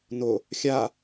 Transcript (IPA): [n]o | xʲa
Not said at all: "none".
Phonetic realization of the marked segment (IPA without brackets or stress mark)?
n